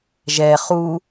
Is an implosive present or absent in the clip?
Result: absent